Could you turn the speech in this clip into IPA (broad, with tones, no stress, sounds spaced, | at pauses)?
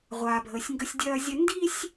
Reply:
ʁʷ aː˨ bʱ əː˨ sʲ ŋ ɡ ə˦ sʲ dʲ ɐː˦ zʲ ə˦ n d i˦ sʲ